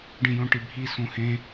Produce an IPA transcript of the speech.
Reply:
ɖĩjõʈibʱi sũhẽ

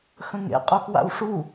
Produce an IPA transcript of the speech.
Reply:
xə̃ŋḛ qʼuxwa̰wʂu

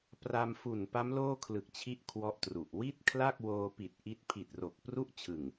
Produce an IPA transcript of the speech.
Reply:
pra˧m fu˨˩npa˦˥m loː˥˩kʰlɯ˨˩k̚t͡ɕʰi˦˥ʔ kʰwɔ˦˥ʔtru˨˩ʔ wi˥˩t̚kʰla˥˩k̚woː˧pi˨˩t̚ ʔi˦˥t̚ pʰi˨˩t̚ro˨˩k̚ pru˥˩ʔt͡ɕʰɯ˨˩ŋ

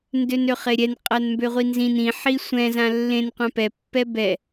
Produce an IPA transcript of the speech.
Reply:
ndønøχeɾʲɛn qʼanmbøʁʷinzĩn ĩ ħisʷɛ̃ zãlːẽnqʷã pɛpːɛ bɛ

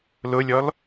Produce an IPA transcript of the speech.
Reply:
lʊlʲɔl

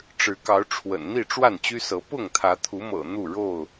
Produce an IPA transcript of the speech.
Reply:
ʈ͡ʂɻ̩˨˦kɑ˨˦ʊ̯ʈ͡ʂʰwə̰˨˩n n̪i˥˨ʈ͡ʂwa˥˨nt͡ɕy˦sɤ˨˦ pʊ˥˨ŋt̪ʰä˨˦t̪ʰu˨˦mɤ̰˨˩ n̪u˥˨ɻo˥˨ʊ̯

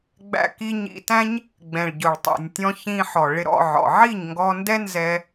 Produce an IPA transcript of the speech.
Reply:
ɡ͡bæ̰˧ki˧ɲḭ˧tæ̃˦ɲ | ɡ͡bɛ̃˨ɭɟʊ˨ɭ tˤɛ̰˨nʲtʲɔ̃˧ çĩ˧ħɔ˨ ɭɪ˧ɾɔ̰˧ʕɔ̰˨ ʕi˦˨ɲŋɡɔ˧ndɛ˦nzɛ˧

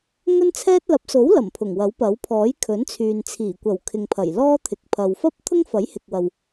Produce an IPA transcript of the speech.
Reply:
ŋɵ˥nt͡sʰɛː˥t̚ lɐ˨˥p̚so˨˥wlɐ˨˩m pʰʊ˨˩ŋwɐ˨˥wpɐ˨˥w pʰɔː˨˥jkʰɵ˨˥nt͡sʰyː˨n t͡sʰiː˨˩kʷɐ˨˩w kʰɪ˨ŋpʰɐ˨˩j lɔː˥t̪ʰɪ˨˥k̚ pʰɐ˨wfɐ˥p̚t̪ʰʊ˥ŋ fɐ˨˥jhɪ˨k̚wɐ˨w

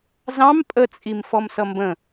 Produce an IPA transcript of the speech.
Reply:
zɑ̃m pʼət͡sʼim fɔmsʌmbə̃

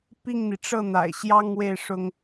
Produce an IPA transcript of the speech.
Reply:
pi˥˩ŋn̪i˩ʈ͡ʂɤ˥˩ n̪a̰˨˩ɪ̯ɕjɑ˥ŋwe˥˩ɪ̯ ʂʊ˥ŋ

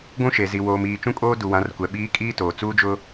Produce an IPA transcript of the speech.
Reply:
ɡʷũ˦ʃe˨zi˨ woː˨miː˨ t͡ʃũ˦kʼoː˦ du˨wã˨˦rkʷɛ˨ ɓiː˨˦ kʼiː˦toː˨ t͡suː˦d͡ʒʊ˦

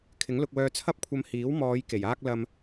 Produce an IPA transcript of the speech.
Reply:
kʰɪ˨˥ŋlʊ˧k̚wœː˧ t͡sʰɐ˥p̚kʷʰɐ˧m hiː˨˥wmɔː˨˧j ke˨˩jaː˥k̚ lɐ˧m

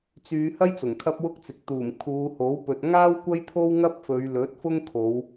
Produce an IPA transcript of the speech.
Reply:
t͡syː˨˧hɐ˥j t͡sʊ˨˩ŋkʰɐ˥p̚wʊ˥k̚t͡sɪ˨k̚ t̪uː˨˩mkʰuː˨˧ho˨˥w pɵ˨t̚ŋaː˥w kʷɐ˥jt̪ʰo˥wŋɐ˥p̚fɵ˨˧ɥ lɵ˨˥t̚fʊ˥ŋkʰo˨˧w

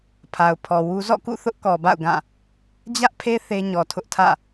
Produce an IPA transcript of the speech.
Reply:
pʰa˨ʊ̯pʰɔ˨ wu˦ zɔ̰˦˨kṵ˦˨ θʊ˦ʔkɔ˨ba̰˦˨ʊ̯ɡã˦˨ | d͡ʑä˦ʔpʰe˦ θe˦ ɲɔ˨tʰʊ˦ʔtʰä̰˦˨

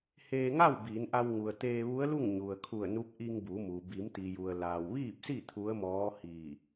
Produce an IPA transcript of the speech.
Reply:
heː˧ŋa˥˨w biː˩˧nʔa˧w ŋu˩ə̯ t̪eː˧ʋu˧˥ə̯lu˥˨ŋ ɲu˩ə̯kʰu˧˩ə̯nu˧˥p̚ ʔi˧ŋbu˩˧mu˩ bi˩˧mt̪i˩ju˩ə̯ laː˩wʋiː˥˨p̚si˥˨ t̪ʰu˧˥ə̯mɔː˧˥ hiː˧˩

